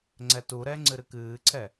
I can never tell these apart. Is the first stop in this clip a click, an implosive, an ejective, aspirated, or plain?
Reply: click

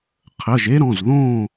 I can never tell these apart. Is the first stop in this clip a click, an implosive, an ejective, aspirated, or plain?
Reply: aspirated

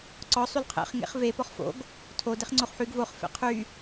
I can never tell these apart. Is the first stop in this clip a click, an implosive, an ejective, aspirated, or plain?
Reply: click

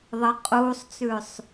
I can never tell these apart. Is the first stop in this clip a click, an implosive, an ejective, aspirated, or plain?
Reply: ejective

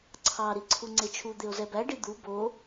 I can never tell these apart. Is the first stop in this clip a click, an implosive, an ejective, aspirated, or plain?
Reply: click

